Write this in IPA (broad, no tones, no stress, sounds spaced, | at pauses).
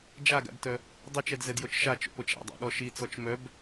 d͡ʒ a ɡ a̰ d t œ | dˤ i t͡ʃ ɛ d z ɛ d j o t͡ʃ ʃ a t͡ʃ o̰ p o t͡ʃ a̰ dˤ a̰ ɠ ɔ ʃ i t͡s ɔ t͡ʃ m œ b